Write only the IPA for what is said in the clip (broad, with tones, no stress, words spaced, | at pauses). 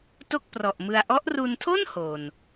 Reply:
to˥˩k̚prɔ˨˩ʔmɯ˧a̯ ʔɔ˦˥ʔru˧ntʰo˥˩n ho˨˩n